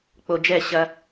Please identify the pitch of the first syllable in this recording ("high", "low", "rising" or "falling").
low